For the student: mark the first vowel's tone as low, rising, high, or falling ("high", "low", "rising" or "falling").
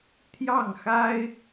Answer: falling